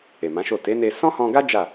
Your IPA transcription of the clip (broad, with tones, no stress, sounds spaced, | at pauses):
e˨ m ã˨˦ ʃ o˦˨ t e˨˦ n e˧ s ɔ̃˦ h ɔ̃˧ ɡ a˦ d͡ʒ a˦˨